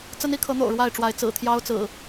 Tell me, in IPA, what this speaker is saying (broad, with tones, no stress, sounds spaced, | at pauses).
t͡s ə˦ n i˨˦ kʰ ɤ˨˦ n̪ o̰˨˩ ʊ̯ ɻ w a˥˨ ɪ̯ ʈ͡ʂ w a˨˦ ɪ̯ t͡s ɹ̩˨˩ t̪ʰ j ɑ˦ ʊ̯ t͡s ɹ̩˨˩